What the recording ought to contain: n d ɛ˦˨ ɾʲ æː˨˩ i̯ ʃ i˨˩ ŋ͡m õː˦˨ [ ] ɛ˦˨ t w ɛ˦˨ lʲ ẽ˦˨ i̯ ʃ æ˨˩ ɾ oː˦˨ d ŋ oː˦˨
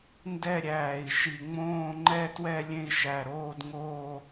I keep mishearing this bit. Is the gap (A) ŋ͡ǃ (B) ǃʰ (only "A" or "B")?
A